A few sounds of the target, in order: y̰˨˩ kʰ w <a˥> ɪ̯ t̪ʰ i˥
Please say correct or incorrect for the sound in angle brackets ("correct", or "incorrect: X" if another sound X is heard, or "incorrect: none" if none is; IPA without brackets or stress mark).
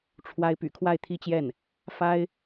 incorrect: a˥˩